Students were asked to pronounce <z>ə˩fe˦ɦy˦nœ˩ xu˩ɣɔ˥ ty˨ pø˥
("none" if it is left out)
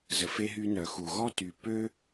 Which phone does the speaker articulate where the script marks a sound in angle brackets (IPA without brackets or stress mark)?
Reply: z